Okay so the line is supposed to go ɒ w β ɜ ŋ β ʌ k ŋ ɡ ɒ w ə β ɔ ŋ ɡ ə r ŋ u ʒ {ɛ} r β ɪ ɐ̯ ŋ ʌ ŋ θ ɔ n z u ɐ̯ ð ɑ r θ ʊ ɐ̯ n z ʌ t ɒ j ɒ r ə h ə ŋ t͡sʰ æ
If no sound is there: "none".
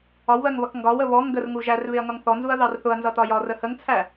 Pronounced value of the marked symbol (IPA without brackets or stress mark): æ